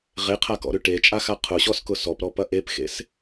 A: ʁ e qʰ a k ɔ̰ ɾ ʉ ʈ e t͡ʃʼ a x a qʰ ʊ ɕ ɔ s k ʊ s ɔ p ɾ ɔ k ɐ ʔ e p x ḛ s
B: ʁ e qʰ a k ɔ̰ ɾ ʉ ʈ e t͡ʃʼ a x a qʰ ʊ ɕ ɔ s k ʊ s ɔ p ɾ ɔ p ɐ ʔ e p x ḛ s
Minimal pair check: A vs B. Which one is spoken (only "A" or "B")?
B